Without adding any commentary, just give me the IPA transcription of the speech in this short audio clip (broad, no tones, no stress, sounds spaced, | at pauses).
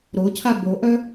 ɾ o cʰ a b o ʔ œ